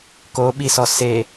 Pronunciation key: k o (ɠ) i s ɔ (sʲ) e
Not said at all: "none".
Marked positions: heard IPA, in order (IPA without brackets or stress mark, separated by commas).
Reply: ɓ, s